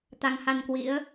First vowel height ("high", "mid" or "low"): low